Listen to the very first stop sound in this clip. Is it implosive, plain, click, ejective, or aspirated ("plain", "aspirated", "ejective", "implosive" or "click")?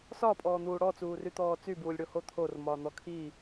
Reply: ejective